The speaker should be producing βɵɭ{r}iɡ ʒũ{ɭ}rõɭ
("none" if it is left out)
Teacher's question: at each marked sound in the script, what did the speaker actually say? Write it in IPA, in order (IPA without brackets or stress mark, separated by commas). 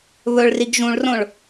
r, ɭ